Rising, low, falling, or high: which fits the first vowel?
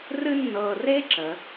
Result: high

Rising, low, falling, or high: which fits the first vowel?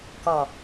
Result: low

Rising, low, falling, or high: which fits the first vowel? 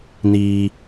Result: high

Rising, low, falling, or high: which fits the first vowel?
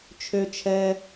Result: high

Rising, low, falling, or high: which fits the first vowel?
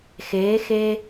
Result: rising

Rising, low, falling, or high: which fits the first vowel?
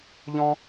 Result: high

